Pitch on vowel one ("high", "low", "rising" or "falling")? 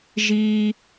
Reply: high